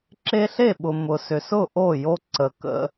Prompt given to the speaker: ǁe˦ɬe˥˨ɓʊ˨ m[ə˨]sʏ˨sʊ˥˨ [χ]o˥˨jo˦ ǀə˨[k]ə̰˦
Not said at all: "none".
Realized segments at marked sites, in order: ʊ˨, ʔ, k

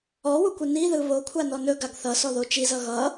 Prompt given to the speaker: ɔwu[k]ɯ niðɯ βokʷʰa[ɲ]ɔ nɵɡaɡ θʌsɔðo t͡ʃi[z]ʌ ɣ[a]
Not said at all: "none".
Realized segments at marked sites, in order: kʷ, n, z, ʌ

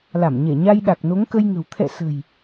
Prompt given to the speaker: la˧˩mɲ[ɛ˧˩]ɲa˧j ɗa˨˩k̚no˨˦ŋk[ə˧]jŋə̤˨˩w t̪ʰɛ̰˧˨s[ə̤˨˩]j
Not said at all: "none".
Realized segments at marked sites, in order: ɛ˧˩, ə˧, ə̤˨˩

